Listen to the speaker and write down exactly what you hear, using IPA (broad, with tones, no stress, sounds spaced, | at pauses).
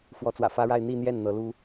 f w ɔ˧˥ t͡s w ä̰˨˩ f ä˥ ɻ a˥˧ ɪ̯ n̪ i˥˧ n̪ j ɛ˥˩ n n̪ ɤ˧˥ l u˥